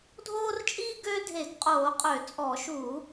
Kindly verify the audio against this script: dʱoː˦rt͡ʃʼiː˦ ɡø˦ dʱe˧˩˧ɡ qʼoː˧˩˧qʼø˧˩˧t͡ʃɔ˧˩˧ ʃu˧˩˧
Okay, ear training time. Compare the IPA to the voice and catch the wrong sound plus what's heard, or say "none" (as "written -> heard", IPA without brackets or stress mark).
t͡ʃ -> t͡sʼ